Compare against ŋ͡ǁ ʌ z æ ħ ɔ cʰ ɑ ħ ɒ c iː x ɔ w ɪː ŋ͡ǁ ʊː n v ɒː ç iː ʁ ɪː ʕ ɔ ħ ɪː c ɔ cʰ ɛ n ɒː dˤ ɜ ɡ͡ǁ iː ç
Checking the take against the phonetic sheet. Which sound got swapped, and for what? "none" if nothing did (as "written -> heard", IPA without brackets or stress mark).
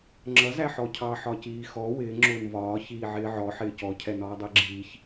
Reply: ʁ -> ʕ